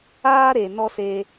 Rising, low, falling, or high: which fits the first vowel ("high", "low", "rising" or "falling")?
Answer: high